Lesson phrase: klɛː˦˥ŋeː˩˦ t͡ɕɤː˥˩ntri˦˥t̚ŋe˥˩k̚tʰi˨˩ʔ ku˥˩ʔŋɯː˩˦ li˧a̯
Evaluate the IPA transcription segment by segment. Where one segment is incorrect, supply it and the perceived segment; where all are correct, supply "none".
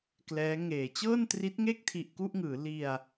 none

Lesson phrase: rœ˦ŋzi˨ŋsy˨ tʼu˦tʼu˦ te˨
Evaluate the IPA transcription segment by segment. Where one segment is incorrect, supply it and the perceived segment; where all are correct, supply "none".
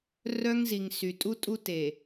none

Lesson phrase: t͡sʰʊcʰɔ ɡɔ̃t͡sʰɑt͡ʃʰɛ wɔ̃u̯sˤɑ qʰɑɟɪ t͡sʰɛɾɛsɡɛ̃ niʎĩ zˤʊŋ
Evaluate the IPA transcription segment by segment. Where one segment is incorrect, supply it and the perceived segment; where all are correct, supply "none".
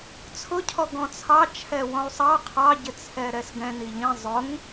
none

